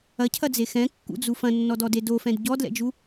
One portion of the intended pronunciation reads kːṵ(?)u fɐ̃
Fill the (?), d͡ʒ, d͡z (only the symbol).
d͡z